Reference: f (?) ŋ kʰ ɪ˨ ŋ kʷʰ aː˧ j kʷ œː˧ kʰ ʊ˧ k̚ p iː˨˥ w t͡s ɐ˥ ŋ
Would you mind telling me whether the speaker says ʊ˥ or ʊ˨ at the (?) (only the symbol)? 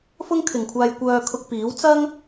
ʊ˥